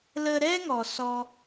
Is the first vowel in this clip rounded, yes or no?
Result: no